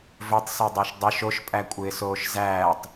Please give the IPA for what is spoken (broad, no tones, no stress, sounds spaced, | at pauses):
v ɵ tˤ s o dˤ ɪː ʃ dˤ ə ʃ o ʃ pʼ æ kʷʼ ɪː s oː ʃ z æː tˤ